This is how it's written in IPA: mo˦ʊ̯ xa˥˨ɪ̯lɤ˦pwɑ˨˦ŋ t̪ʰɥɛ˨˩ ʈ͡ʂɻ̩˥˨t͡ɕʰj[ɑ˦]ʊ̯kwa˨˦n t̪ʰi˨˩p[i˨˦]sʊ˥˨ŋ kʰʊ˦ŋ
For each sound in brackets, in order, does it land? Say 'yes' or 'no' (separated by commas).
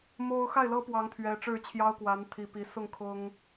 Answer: yes, yes